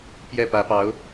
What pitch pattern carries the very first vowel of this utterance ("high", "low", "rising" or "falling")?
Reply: falling